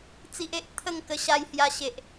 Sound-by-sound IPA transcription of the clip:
t͡s i˦ ʔ e˦ ʔ t̪ʰ ə˥˧ ŋ k ə˧ ɕ a˧ j h j a˧ ɕ e˨ ʔ

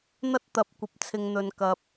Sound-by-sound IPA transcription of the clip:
n̪ ɐ˥ t̚ t̪ ɐ˨˥ p̚ kʷ ɐ˨ p̚ t͡sʰ ɪ˨ ŋ n̪ ɵ˨ n k ɐ˨ p̚

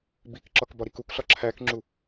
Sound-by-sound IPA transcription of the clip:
b i k ǁ ɒ k b ɒ ɾ i k u k ɬ ɒ ǁʰ æ k ŋ͡ǁ u

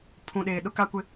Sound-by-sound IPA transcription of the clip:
pʰ ũ˨ ɗ eː˨ ɗ ʊ˦ k a˦ kʷ ɪ˦

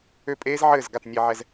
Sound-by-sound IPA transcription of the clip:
ø˥˩ pʼ eː˥ z ʕ ɘː˥˩ z ɡ a˥˩ t nʲ e˧ ʕ ɛ˧ z

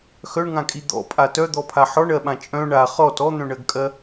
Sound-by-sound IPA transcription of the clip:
x œ ɳ ŋ ã kʼ i d̪ ɔ̰ pʼ a t œ d̪ ɔ pʰ a ħ ɔ ɳ ɜ ɓ ã t͡ʃʼ œ̃ ɳ a χ ɔ t ɔ n̪ œ̃ ɳ ɜ ɡ kʼ ɜ

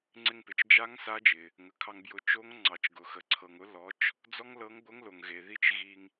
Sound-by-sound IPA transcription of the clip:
ŋ͡ǀ ɪ˧ ŋ p ɪ˩ t͡ʃ d͡ʒ a˧˥ ŋ s a˧˥ d͡ʒ ɪ˩ | ŋ ə˩˧ kʰ ɑ˧ ŋ b j ʊ˧ t͡ʃ o˧˥ ŋ ŋ͡ǀ ɑ˩ t͡ʃ ɡ ʊ˩ x ə˩ ǀʰ ɤ˩ ŋ ʊ˧˥ l ɔ˩˧ t͡ʃ | d͡z ɔ˥ ŋ l ɤ˧˥ ŋ ɡʷ ə˧˥ ŋ l o˩ ŋ ɣ e˩ ð i˧ t͡ʃ ɣ i˧ ŋ

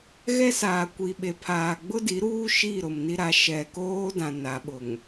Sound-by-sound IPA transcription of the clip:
ɣ ɛ˦ s aː˨ kʷ i˨ ɓ e˨ pʰ aː˨ ɡ͡b ʊ˦ d i˨˦ ɾ uː˦ ʃ i˦˨ ɾ ʊ˨ m n i˦ ɾ a˨˦ ʃ ɛ˨ k oː˦ d ã˨ n a˨˦ ɓ ʊ˨ ŋ

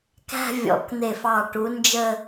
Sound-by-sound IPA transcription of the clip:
k æ̤˥˧ vʲ ɔ̰˨˥ k n̪ e˧˩ f ɑ˧˩ ʈ u˨˥ n d͡ʒ ə˥˧

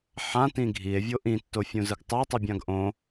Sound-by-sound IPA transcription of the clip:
ħ ã t ĩ ɡʱ i e̯ vʲ o ʔ ĩ tː o fʲ ũ z ɯ ɡ tˤ ɤ tˤ ɯ bʲ ã ɡ ʔ õ

